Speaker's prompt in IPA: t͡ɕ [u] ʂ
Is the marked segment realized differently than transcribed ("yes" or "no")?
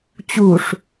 no